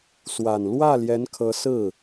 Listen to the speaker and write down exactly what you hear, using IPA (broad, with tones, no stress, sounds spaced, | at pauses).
s w a˨˩ n l w ä˥˩ l j ɛ˧˥ n kʰ ɤ˧˥ s ɹ̩˥˩